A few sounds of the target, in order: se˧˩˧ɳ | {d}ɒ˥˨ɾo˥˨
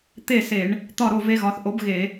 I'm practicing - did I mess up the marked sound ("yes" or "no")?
yes